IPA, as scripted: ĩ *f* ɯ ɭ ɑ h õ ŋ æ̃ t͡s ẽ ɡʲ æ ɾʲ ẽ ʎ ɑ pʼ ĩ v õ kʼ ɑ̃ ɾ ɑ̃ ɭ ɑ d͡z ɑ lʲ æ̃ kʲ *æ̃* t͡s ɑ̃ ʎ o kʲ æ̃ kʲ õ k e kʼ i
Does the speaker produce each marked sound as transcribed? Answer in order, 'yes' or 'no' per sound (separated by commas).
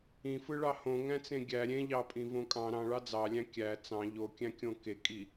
yes, no